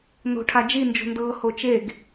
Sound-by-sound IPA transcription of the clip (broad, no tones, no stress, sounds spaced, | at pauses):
n o̤ ʈʰ a d͡ʒ i n d͡ʒ o̤ n d ɤː h o t͡ʃ e ɡ